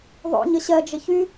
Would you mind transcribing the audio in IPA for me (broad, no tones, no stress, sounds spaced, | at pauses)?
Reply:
ðˤ o̰ ɲ ə ɕ ɜ d͡ʒ ə ç y